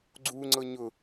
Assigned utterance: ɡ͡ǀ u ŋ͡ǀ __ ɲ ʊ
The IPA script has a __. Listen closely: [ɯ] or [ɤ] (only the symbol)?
ɤ